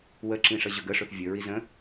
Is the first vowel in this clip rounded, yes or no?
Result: no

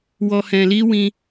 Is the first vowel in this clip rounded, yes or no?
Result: yes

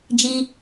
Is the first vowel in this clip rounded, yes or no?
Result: no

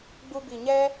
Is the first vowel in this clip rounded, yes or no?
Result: yes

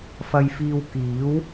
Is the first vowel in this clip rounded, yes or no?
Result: no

